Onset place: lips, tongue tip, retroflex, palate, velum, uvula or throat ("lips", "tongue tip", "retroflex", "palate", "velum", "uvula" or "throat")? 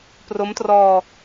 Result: lips